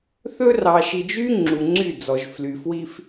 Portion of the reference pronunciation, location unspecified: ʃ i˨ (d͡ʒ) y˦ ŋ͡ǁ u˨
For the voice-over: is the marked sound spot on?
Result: yes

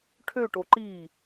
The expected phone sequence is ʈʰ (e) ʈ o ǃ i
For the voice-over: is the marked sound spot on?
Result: no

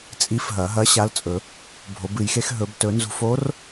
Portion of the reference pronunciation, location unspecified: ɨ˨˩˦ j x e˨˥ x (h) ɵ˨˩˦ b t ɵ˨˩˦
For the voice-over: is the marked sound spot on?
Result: no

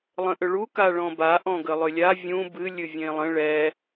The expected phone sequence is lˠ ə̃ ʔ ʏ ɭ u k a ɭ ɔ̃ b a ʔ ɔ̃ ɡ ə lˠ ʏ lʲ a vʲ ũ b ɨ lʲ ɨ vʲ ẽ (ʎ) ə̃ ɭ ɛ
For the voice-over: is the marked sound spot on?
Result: no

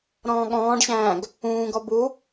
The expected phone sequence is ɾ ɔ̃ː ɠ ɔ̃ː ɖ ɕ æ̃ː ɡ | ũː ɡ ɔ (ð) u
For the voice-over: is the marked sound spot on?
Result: no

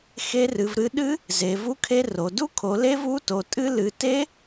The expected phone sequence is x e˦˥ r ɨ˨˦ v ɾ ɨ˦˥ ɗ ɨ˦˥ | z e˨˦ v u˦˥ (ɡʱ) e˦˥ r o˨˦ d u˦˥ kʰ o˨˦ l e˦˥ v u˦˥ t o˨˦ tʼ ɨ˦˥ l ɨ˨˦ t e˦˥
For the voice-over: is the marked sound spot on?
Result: no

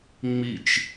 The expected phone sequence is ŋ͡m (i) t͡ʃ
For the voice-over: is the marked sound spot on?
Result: yes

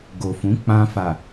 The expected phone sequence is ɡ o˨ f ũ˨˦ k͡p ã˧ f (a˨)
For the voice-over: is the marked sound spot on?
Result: yes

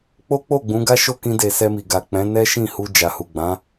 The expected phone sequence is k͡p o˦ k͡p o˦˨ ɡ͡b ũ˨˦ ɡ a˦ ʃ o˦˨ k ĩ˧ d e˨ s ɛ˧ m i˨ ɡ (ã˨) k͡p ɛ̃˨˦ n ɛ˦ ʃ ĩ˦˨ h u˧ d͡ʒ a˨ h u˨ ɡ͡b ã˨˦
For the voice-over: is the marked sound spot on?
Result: no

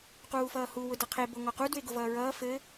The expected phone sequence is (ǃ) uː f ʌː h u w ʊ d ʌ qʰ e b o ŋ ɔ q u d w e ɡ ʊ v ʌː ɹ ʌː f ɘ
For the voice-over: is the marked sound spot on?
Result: no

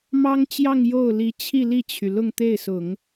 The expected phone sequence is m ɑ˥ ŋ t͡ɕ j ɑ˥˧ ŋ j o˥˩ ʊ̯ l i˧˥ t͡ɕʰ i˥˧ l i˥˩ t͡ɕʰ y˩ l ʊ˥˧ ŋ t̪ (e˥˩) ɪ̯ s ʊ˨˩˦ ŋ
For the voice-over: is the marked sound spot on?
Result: yes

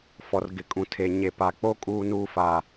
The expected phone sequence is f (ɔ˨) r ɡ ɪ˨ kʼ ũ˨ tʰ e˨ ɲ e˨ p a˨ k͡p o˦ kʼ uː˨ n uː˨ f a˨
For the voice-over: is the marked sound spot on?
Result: yes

